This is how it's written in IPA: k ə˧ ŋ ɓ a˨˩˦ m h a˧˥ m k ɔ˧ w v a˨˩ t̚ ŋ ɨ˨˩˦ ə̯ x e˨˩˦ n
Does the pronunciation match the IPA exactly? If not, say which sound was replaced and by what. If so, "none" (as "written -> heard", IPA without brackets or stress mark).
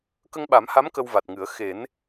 ɔ˧ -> ə˧